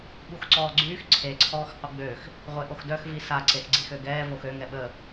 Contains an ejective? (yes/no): no